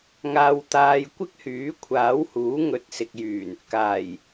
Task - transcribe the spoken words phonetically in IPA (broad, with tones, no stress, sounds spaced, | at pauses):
ŋ aː˧ w t̪ aː˧ j kʷ ɪ˥ k̚ h yː˨˥ kʷʰ aː˨˥ w h uː˨˥ ŋ ɵ˨˥ t̚ s ɪ˨ k̚ j yː˨˩ n | k aː˨˩ j